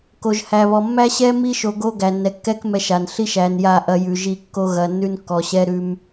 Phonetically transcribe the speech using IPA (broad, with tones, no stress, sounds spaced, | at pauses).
k o˨ ʒ h æ˨ β ɔ˨ mː æ˦ ɕ ɛ˦ m i˦ ʃ o˨ ɡ o˦ ɡ æ˨ nː ɛ˨ kː ɛ˦ k m ɛ˦ ʃ a˨ n ɬ i˦ ʃ æ˨ n j a˦˨ ʔ ɐ˦ j ʉ˨ ʒ i˦˨ kː o˦ ɣ ɐ˨ nː ʉ˦ n kː ɔ˨ ɕ ɛ˦ ɾ ʉ˦ m